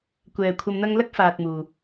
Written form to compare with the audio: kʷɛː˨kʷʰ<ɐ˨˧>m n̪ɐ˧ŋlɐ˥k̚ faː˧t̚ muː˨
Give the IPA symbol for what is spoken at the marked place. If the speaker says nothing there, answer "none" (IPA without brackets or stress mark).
ɐ˧